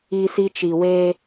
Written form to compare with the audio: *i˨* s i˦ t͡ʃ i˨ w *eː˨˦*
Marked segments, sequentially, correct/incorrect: incorrect, incorrect

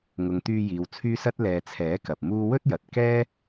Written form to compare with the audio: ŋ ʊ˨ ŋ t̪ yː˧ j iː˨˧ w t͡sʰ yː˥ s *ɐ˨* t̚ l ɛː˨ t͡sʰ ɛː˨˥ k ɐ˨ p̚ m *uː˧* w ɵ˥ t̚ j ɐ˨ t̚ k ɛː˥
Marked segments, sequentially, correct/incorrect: incorrect, incorrect

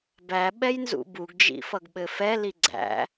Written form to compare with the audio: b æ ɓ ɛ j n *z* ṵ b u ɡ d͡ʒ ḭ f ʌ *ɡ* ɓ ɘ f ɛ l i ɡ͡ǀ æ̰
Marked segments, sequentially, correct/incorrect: correct, correct

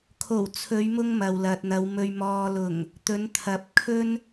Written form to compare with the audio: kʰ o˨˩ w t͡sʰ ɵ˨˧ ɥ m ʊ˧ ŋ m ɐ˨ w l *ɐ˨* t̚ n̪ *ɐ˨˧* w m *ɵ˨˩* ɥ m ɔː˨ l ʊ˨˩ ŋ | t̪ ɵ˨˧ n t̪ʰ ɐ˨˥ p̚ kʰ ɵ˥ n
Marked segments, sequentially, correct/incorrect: correct, correct, incorrect

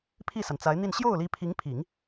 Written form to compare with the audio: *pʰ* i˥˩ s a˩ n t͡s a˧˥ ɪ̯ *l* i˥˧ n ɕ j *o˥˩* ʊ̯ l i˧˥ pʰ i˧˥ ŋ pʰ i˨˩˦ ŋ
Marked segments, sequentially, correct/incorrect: correct, incorrect, correct

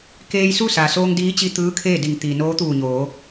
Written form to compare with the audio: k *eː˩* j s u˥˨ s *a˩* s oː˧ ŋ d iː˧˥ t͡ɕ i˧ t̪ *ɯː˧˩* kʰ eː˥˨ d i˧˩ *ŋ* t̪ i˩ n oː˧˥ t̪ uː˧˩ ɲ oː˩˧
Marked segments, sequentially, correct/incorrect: incorrect, correct, incorrect, correct

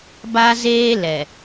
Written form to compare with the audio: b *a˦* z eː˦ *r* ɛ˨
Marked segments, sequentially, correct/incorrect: correct, incorrect

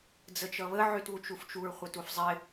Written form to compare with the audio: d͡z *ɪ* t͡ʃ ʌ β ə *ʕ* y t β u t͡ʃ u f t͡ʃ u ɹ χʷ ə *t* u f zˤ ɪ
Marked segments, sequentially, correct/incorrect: incorrect, correct, correct

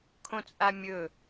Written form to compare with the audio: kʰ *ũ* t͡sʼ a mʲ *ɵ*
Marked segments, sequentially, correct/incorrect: incorrect, correct

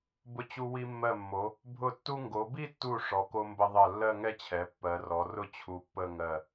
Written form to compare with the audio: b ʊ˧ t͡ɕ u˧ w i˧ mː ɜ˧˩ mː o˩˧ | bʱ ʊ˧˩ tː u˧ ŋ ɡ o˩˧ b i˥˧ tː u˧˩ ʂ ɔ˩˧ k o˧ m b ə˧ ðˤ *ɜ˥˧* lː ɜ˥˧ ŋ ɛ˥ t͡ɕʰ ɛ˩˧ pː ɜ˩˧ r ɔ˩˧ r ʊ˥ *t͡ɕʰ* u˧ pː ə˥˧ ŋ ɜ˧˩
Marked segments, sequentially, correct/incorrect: incorrect, correct

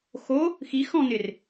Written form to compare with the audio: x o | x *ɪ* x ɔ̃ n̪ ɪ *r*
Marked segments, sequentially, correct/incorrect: incorrect, correct

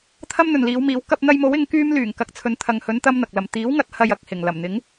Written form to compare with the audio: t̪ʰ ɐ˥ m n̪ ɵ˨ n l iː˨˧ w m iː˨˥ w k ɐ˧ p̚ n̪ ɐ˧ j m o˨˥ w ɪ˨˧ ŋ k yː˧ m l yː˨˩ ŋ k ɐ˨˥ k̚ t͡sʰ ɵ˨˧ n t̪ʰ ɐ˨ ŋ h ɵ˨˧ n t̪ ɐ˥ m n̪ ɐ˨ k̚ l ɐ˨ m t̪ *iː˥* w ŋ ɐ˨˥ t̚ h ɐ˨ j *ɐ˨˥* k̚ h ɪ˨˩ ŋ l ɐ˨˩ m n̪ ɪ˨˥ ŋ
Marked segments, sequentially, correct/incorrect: incorrect, incorrect

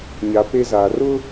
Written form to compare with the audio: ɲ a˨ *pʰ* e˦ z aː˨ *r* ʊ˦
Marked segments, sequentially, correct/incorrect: incorrect, correct

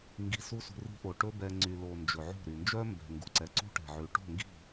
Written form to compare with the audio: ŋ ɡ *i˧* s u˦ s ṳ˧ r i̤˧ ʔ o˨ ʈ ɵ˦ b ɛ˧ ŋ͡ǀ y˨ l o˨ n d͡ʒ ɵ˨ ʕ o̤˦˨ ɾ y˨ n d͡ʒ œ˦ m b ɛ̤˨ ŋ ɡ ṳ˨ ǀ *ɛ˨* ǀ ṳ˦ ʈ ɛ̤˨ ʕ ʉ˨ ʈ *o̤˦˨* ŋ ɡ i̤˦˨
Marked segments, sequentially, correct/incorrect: correct, correct, correct

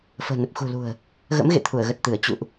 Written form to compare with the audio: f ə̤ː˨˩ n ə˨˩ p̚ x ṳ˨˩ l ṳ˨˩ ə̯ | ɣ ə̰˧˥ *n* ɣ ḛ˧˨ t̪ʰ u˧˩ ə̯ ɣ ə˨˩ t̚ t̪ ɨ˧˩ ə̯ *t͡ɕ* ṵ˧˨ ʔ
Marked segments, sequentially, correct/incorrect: incorrect, correct

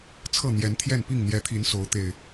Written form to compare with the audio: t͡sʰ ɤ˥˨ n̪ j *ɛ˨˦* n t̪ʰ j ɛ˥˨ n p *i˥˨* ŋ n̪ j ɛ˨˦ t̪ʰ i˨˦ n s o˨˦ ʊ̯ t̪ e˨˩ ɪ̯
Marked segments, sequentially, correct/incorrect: correct, correct

